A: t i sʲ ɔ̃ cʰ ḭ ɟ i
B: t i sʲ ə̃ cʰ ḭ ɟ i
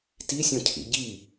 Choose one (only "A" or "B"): A